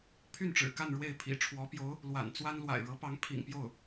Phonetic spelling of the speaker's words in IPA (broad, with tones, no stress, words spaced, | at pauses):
pʰy˥˩nʈ͡ʂɻ̩˨˩ka˥˧n ɻwe˥˩ɪ̯pʰḭ˨˩ ʈ͡ʂʰwɔ˧˥pjo˧˥ʊ̯ | lwa̰˨˩nt͡swa˥n lwa̰˨˩ɪ̯ɻɤ˧˥pɑ˧˥ŋ pʰḭ˨˩ŋpjo˥˩ʊ̯